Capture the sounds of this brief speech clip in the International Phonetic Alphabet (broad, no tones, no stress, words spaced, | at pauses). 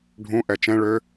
ɖʱũ ʔɛt͡ʃɛ̃ ɭø